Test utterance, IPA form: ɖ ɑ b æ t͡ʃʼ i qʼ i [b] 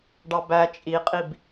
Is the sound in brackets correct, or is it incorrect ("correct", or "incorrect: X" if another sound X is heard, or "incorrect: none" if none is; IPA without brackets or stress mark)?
correct